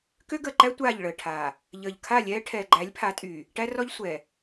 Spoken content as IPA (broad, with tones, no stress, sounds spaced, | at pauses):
k ø˦ ɡ əː˨ ǃ æ˦ tʷ aː˦˨ ʎ ɭ əː˨ ʈʰ aː˨ | ʎ əː˨ ʎ kʰ a˦˨ lʲ ɛː˦ ʈʰ ɛː˨ ɡ͡ǃ æ˨˦ lʲ pʰ a˨˦ tʼ yː˨ | ʈ æ˦ r ɔ˦ ʎ sʷ ɛː˨